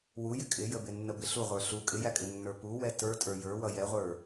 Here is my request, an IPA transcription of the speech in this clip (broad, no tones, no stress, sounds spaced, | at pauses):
w u j ɪ kʼ ɪ j ə b ɪ nː ə b ɪ ɬ u ʁʷ ə˞ ɬ u kʼ ɪ j æ kʼ ɪ nː ə˞ p u w ɛ t ə˞ tʼ ə˞ j ə˞ w ʌ j ɛ ʁʷ ə˞